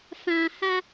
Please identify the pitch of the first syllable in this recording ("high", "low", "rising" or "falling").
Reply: low